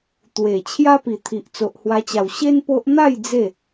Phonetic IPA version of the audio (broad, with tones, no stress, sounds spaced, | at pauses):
t̪ w e˨˩ t͡ɕʰ j a˦ p i˨˩ t̪ʰ i˨ ʔ t͡s o˨ ʔ h w a˧ t͡ɕ a˨˩ w ɕ e˦ n p o˦ ʔ n̪ a˥˧ j d͡z e˥˧